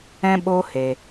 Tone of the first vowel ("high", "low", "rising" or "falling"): high